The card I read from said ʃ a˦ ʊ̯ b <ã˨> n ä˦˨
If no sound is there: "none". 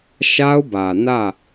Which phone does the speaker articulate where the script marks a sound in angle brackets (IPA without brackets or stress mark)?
ä˨